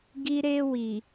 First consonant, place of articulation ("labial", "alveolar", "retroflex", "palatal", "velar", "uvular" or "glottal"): velar